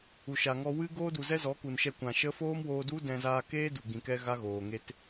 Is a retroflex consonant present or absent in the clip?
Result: absent